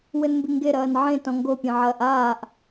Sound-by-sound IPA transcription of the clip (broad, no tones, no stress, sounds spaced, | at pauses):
w ɘ n m b i ŋ ɡ e ɾ ɐː n ʕ ẽ t ɔ̃ ŋ ɡ o pʲ ẽ ʕ ɐː ʔ aː ʔ